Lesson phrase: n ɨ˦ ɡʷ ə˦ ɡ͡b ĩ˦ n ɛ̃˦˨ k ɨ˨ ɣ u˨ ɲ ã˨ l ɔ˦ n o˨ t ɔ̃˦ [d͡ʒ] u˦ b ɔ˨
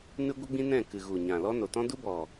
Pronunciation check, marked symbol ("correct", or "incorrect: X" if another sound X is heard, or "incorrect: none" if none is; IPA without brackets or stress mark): incorrect: d